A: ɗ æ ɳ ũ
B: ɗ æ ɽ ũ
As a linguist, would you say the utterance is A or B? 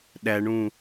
A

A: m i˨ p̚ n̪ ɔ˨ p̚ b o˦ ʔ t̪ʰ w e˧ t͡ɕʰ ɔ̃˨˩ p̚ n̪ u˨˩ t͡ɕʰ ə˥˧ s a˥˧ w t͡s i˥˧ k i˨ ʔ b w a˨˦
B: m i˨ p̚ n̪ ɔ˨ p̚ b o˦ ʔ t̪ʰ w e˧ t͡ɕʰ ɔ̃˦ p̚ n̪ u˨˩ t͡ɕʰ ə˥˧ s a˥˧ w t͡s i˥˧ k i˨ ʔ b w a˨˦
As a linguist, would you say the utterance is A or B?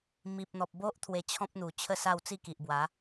B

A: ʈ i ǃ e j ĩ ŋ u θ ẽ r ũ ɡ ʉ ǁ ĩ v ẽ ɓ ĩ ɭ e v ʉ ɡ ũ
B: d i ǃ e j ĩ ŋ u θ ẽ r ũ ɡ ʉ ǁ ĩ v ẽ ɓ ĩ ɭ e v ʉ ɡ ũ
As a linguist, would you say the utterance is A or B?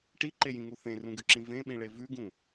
A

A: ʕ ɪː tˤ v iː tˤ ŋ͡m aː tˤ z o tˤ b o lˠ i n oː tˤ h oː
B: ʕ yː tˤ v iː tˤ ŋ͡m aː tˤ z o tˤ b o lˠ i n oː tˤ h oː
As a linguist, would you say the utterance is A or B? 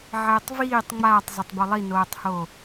A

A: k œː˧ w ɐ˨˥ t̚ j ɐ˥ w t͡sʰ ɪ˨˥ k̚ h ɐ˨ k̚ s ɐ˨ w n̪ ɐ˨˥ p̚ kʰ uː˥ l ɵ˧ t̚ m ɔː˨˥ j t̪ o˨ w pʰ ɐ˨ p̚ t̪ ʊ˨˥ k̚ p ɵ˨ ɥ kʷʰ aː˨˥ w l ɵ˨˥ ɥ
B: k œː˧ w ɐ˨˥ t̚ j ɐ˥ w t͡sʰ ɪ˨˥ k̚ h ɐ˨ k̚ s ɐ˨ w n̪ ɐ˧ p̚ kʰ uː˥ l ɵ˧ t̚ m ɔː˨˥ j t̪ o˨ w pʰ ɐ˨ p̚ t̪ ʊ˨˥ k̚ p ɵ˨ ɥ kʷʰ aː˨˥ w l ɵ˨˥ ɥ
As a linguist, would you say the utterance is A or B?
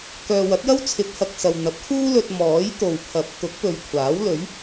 A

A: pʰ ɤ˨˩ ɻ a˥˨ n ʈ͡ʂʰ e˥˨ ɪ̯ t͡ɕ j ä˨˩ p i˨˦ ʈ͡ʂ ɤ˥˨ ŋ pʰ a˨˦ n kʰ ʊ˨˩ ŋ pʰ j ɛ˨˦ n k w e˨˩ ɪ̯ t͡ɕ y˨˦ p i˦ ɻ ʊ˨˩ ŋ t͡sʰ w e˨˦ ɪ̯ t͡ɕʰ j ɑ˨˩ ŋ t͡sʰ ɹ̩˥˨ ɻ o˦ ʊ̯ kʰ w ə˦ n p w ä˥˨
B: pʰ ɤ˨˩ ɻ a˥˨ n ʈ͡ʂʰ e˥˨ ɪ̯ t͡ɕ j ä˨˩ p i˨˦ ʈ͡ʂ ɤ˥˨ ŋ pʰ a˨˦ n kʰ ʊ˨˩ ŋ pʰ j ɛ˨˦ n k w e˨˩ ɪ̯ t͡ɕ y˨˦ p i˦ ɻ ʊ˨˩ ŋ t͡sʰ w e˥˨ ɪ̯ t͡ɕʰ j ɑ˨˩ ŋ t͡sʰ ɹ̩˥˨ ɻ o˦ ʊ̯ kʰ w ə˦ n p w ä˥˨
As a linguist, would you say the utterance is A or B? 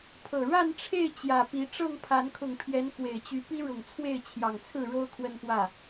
B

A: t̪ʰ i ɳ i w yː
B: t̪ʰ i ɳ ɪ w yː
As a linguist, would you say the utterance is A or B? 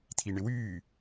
B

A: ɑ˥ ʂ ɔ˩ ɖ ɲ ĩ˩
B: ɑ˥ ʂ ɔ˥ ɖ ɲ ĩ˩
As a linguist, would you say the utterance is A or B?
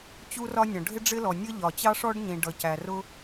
B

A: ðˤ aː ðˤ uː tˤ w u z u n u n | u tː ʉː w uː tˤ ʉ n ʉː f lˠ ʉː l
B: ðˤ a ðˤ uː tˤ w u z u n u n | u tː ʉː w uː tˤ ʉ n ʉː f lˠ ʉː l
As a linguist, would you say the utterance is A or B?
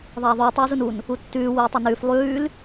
A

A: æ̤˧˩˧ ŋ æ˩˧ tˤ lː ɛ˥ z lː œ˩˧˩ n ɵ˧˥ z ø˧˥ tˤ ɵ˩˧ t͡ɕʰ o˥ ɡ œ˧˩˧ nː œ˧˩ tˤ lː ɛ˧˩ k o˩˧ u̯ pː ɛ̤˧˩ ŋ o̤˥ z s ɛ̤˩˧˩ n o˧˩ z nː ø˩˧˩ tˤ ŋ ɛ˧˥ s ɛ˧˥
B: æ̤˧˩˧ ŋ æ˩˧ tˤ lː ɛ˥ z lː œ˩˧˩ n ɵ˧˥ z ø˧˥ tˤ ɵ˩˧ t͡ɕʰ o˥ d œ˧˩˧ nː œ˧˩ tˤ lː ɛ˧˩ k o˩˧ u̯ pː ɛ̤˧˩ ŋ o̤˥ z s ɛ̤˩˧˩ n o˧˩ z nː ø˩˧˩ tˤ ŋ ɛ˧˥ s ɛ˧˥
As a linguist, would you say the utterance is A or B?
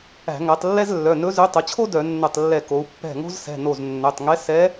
B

